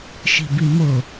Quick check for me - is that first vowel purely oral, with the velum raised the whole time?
yes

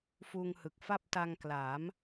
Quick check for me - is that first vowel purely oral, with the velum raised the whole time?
yes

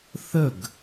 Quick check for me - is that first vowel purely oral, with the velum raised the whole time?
yes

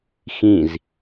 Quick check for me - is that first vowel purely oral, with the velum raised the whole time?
no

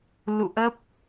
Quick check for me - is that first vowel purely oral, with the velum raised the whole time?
yes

